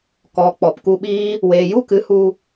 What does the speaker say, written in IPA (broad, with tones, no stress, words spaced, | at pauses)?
kɔ˨˦k͡pɔ˨p ku˧ɓiː˦ | weː˨ ju˦kɨ˨˦hu˧